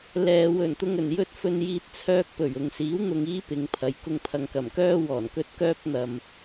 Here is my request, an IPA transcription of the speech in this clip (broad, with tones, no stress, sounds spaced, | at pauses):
l ɛː˨ w ɵ˨˩ n t̪ ʊ˨ ŋ ɵ˨˩ n j ɵ˧ t̚ f ɵ˨ n j iː˨ t̚ t͡sʰ œː˧ k̚ p ɵ˨˩ ɥ ʊ˨ ŋ s iː˨˥ w n̪ ʊ˧ ŋ iː˥ p ɪ˨˧ ŋ pʰ ɐ˨˧ j k ʊ˧ ŋ pʰ ɐ˨ ŋ k ɐ˨˩ m k œː˥ w ɔː˨˩ n k ɵ˥ t̚ k œː˥ p̚ n̪ ɐ˨ m